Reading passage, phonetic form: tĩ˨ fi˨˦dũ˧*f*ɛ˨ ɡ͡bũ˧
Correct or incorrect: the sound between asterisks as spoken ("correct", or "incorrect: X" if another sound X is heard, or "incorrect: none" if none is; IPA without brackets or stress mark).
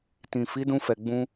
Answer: correct